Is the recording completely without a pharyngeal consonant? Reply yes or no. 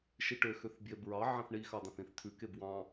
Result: no